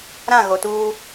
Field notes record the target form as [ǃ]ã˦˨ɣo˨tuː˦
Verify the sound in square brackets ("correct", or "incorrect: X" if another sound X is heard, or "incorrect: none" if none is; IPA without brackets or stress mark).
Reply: incorrect: ɾ